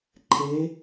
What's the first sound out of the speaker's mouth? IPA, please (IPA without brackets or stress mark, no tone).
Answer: ǃʰ